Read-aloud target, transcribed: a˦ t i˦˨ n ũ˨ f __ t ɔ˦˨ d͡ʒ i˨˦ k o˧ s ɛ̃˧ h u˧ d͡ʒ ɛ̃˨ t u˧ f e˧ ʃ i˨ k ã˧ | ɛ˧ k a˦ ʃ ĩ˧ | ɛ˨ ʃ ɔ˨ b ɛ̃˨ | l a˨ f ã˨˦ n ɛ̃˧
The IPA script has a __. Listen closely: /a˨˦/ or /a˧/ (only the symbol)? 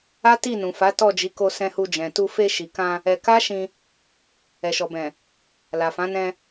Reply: a˨˦